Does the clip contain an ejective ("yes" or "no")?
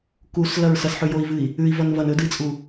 yes